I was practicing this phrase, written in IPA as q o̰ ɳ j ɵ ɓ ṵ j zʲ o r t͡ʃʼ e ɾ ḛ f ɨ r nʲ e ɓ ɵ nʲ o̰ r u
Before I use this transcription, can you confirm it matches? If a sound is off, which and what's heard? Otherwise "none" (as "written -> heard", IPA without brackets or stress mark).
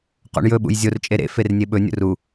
ɨ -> e